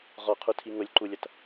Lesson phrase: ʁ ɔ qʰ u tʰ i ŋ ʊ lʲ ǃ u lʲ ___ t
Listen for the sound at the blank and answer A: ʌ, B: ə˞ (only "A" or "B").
A